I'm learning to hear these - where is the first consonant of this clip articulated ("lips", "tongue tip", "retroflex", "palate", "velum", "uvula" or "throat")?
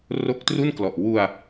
tongue tip